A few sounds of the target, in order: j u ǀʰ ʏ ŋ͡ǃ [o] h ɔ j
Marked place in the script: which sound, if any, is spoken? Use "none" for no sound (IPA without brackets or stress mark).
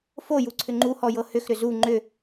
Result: u